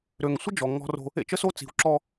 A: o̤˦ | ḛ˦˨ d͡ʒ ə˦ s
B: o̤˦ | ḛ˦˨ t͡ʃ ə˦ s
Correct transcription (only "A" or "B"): B